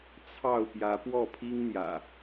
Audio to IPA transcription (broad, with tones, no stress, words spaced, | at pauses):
t͡sʰɑ˥˨ʊ̯pjä˨˦ pwɔ˥˨pʰi˦ŋn̪jä̰˨˩